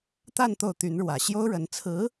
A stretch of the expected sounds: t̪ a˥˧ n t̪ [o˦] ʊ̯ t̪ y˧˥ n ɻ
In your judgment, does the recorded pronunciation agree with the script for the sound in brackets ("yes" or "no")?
no